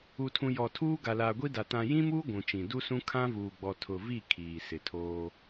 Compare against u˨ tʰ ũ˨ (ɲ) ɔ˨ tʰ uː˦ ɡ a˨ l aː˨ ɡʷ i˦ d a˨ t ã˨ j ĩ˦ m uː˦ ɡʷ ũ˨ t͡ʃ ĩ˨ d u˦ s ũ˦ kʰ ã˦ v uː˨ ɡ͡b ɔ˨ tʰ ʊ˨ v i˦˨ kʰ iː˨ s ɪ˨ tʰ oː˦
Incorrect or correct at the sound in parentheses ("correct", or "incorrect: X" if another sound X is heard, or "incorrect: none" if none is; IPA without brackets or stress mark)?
incorrect: j